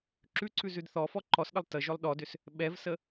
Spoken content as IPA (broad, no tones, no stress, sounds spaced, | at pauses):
ǁ ʉ ǀ ʉ z ʉ d θ ɔ f ɔ ǃ ɔ s ɗ ə lˠ t ə ʒ ʏ lˠ ɗ ɔ d ʏ s | ɓ ɛ v s ə